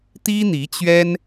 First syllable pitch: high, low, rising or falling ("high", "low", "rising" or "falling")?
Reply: high